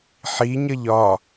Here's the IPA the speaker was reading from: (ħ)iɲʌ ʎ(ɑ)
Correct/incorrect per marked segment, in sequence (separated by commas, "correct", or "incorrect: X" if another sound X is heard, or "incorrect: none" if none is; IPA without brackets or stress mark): correct, incorrect: ɒ